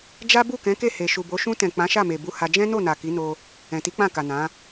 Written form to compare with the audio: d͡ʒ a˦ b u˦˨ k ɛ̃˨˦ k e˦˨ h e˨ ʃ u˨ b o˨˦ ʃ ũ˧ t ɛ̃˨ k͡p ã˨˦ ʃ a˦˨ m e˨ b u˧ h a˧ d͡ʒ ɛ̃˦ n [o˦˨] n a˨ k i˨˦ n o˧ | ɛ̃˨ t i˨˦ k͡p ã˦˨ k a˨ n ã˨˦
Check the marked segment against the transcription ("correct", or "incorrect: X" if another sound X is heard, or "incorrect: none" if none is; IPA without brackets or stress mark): correct